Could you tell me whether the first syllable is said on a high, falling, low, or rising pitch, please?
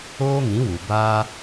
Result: high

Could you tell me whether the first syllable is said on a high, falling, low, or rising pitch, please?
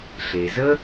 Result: low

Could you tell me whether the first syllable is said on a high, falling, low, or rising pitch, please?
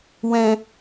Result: low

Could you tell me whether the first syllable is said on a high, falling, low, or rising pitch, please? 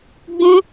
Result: high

